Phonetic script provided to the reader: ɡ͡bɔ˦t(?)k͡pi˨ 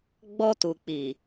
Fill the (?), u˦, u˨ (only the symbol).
u˨